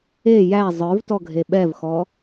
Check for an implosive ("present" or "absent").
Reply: present